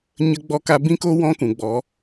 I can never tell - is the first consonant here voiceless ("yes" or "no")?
no